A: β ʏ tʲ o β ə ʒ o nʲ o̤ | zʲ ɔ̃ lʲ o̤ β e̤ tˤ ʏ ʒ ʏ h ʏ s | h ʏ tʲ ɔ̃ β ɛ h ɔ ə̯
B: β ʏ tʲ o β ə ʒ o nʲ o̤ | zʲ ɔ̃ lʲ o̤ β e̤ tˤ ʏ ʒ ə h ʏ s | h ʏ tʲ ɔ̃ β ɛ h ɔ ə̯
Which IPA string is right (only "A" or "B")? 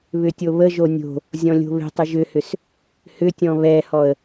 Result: A